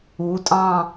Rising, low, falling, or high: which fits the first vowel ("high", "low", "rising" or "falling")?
rising